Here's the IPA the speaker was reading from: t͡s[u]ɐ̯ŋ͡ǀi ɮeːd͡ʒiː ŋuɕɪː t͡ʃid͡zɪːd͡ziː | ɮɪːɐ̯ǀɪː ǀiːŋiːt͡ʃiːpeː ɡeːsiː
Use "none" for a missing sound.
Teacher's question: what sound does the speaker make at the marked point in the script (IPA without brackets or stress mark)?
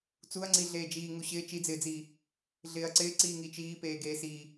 u